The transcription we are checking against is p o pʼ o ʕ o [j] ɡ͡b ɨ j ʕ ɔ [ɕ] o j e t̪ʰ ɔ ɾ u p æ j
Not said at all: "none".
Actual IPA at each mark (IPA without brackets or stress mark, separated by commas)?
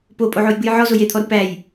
j, z